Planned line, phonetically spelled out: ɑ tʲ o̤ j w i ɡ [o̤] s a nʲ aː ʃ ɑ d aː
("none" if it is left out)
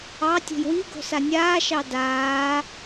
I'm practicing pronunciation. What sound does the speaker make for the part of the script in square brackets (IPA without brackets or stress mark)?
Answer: o̤